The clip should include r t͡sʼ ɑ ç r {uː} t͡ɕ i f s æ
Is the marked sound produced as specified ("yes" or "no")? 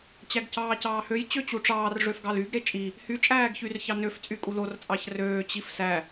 no